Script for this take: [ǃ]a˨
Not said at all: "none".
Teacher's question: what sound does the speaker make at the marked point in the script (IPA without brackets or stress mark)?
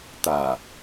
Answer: t̪